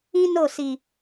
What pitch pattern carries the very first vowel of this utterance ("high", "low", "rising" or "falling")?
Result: high